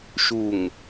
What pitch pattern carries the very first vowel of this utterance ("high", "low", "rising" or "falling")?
low